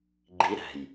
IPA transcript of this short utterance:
ɡ͡ǃiɾæ̤j

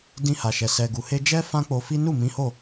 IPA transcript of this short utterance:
dĩ˧ha˨ʃɛ˨ sɛ˨ ɡu˨he˧d͡ʒɛ˦ fã˦k͡po˧fi˦ nu˦˨mĩ˨˦ho˦˨

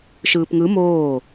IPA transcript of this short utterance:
ʃɯːpŋɯ moː

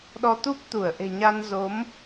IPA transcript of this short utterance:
ɗɔ˧t̪u˦˥p̚ t̪u˧˩ə̯ʔe̤˨˩ɲa˧nzo˨˦m

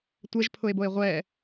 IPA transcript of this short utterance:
tʷɛʒpʰʊe̯boe̯ ʁʷɛ

